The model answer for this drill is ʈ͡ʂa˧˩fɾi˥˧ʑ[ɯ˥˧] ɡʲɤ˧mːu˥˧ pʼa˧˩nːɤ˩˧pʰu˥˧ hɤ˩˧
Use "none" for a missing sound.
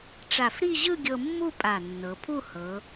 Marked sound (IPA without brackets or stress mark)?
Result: ɯ˥˧